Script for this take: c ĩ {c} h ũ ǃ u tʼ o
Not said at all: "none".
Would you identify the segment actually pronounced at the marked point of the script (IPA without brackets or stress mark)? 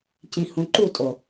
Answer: none